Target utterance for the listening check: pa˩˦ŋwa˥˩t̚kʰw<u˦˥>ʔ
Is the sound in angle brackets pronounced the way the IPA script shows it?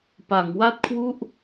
no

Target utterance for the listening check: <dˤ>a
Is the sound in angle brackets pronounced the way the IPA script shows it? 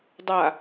yes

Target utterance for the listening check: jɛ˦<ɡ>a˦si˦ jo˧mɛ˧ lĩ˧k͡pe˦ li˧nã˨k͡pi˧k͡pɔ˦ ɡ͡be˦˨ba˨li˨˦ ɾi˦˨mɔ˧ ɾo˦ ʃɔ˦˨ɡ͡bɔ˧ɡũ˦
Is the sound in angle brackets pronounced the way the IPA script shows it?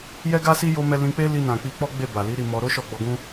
yes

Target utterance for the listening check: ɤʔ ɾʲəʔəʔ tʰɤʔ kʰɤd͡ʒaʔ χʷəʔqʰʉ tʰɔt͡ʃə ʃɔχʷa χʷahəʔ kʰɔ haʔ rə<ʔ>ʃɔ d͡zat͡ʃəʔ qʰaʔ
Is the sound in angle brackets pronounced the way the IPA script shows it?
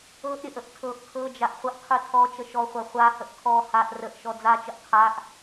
yes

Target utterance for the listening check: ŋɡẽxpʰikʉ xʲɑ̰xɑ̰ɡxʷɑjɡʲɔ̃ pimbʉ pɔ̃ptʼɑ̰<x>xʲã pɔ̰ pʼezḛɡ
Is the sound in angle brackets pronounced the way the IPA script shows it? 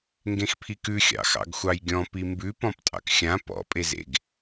no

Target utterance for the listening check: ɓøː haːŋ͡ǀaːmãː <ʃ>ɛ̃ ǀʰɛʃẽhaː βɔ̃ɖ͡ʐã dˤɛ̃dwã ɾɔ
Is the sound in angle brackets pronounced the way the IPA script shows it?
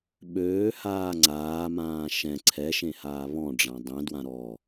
yes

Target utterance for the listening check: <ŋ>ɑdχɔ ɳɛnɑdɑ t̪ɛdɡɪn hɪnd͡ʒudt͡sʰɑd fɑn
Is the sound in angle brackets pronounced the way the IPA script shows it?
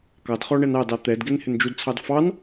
no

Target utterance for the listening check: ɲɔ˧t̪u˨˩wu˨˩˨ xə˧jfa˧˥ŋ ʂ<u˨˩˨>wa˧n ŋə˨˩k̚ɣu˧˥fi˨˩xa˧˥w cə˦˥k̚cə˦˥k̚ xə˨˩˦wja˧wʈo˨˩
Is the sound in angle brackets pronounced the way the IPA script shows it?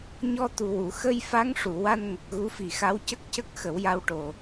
yes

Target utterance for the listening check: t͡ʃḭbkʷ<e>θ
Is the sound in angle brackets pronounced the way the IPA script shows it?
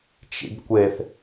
yes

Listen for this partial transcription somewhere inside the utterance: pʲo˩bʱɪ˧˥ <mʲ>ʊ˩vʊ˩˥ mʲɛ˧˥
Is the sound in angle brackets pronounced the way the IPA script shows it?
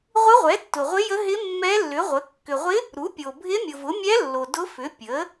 yes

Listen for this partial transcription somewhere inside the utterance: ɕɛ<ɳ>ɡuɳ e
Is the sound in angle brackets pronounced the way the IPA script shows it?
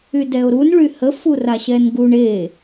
no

